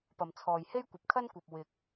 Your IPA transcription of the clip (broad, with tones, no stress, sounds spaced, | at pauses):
p ɐ˨ m t͡sʰ ɔː˨ j h e˥ j kʷ ɐ˨ p̚ kʰ ɐ˥ n kʷ ɐ˨ p̚ w ɪ˧ k̚